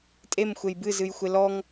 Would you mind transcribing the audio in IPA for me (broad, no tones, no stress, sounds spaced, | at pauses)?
tʼ e m xʷ e j b ɨ z ɨ j xʷ e l ɔ ŋ